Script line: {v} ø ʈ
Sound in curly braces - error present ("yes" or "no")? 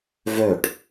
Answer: no